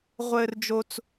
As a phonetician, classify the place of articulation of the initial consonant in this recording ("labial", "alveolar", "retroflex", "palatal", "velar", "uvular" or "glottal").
uvular